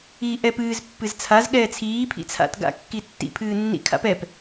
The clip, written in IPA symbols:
iːʔɛːpɨːz pːɨzt͡sʰaz ɠɛːt͡sʰiː pʰḭt͡sʰa̰t ɡa̰kːitːḭ pʰɨːnːḭ kʰa̰pɛp

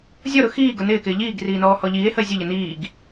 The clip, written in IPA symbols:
zʲɔɾʊ xiː ɡʊnɪːkɪː ʎiːɡriː nɔːhɔʎiːe̯həe̯ zʲəʎə niːɡ

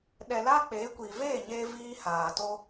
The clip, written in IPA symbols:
ɗɛ˨la˦ k͡pe˨˦kʷi˨ veː˦˨ɲeː˧ viː˦haː˨ to˧

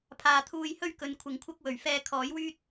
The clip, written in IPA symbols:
pʰaː˨t̪ʰuː˧jhɵ˥ɥ kɵ˨˧n kʷʰɪ˨ŋkʷʰɐ˥k̚ wɵ˨˩ɥfɛː˧ kʰɔː˨˥jwyː˥t̚

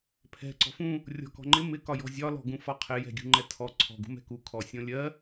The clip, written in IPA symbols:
pʰɛ̤ ǀɔ̤fũ | rʲɔ̤kɔ̤ŋ͡ǃɪ mɪ kɒjɔ̤zʲɒ lɔ̤ɡũfɒqʰɪ jɛ̤ɡʲṳŋ͡ǃɛtʰɔ ǀʰɔ̤ ɡṳmɛ̤ku kʰɔsʲɔ̃lʲɜ

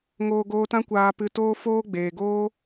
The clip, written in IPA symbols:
ŋoː˧ɡoː˧tã˦ kʷaː˧pɨ˧ toː˦ foː˦ɡ͡beː˨ɡoː˦

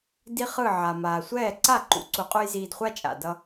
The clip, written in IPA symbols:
di˥χɯ˥˩ ʕa˩maː˩sʷɛː˥˩ ǀa˥˩ǃṵ˩ ǀu˧qʼu˥j ziː˧dχʷa˥t͡ʃʼa̰˩ dʌ˧

